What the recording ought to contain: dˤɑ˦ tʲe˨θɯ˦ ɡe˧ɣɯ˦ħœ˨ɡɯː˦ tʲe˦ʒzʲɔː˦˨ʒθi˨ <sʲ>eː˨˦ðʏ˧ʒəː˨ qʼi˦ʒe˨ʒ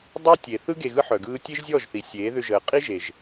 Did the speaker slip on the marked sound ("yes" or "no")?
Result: no